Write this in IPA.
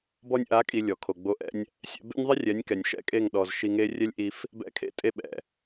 bɔ˧nʲʔa˨˦kʼi˨ lʲɔ˨kʰo˨ɡ͡bo˧ʔɛ̰˦nʲ | sʲɛ̰˧ bḛ˦nʲðˤi˦ rʲɛ˨˦nʲkɛ˨nʲʃɛ̰˦kʼe˦˨ŋ ɗɔ˨z ʃi˧ŋe˦ rʲɛ˦lʲʔi˧f | bɛ̰˦kʰḛ˦tʼe˦ɓɛ̰˨

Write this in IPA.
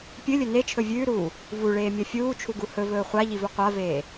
pʲɨlʲɵ net͡ʃʰɵ vʲʉːɾuː | vuɭeːmʲɐ fʲuːt͡ʃʰuɡu hɵvɵː χʷaʎivɵ qʷaveː

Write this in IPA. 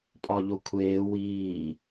pʼɒʎokʷʰeː wiː

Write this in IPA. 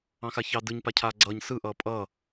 ɑ̃xaçɑ dɯɲ pacʰaːɡ͡ǀʌːɲ sɯ ʔʌːpʼʌː

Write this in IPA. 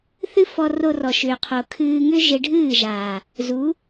θɨ˦fɔ˧ro˧rɔ˨ ʃʏː˨qʰo˨kʰɨː˧ŋʏ˦ ʒe˧ɖʱɨː˦˨ʒaː˨ | zu˨˦

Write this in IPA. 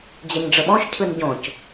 d͡ʑɛɲɖ͡ʐəɓɔ̃ʃ cʰɯnɟõc

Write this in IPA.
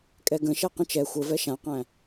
kʼɛɡə̃ʃɛ qə̃t͡ʃɛ xʷəvɛ ʃãqæ̃

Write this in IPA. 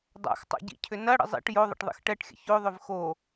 dˤa̰xtˤa̰ɟḭcʰʏ nɐɽə̰ zˤḭʈ joðˤə̰ʈðˤḭx ʈɛʈxʲə̰ çoðˤʏv xo

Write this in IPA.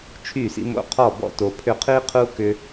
t͡ʃʰy˦˨sḭ˦mo̰˦ qʰɔ˦˨bɔ̰˦to˨ pʰʏ˧qʰi˦qʰu˦ kʏ˦

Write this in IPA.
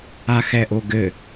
axɛʔoɡɘ

